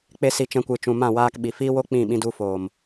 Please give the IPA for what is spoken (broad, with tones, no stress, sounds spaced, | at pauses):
k͡p e˦ s i˧ t͡ʃ ɛ̃˧ kʷ ɨ˨ t͡ʃ ũ˨ m ã˦˨ w aː˧ k ɓ i˨ f iː˦ w o˦ k͡p ĩ˦˨ ɓ ĩ˧ d u˧ f oː˨ m